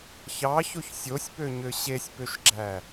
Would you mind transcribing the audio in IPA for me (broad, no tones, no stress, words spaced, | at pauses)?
çɑçoç sʲosʲpøɲø ɕesʲpøʃɡ͡ǁæ